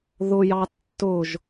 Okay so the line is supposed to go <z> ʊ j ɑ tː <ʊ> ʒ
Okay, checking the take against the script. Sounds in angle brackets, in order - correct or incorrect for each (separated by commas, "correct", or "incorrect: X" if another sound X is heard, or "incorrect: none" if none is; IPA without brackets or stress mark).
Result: incorrect: ð, correct